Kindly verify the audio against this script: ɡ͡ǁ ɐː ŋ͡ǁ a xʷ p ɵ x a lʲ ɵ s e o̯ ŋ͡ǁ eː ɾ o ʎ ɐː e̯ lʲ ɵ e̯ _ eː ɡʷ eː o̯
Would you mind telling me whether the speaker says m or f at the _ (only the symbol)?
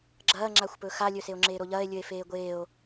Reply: f